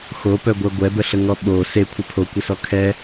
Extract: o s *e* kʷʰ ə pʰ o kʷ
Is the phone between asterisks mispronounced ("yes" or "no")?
no